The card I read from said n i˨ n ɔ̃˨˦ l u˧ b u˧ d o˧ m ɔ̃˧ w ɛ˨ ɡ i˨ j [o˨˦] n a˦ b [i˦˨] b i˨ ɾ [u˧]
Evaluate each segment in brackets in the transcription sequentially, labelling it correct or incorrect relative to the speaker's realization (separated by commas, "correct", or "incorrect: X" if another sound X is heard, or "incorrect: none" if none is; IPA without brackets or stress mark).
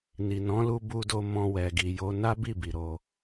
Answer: correct, correct, incorrect: o˧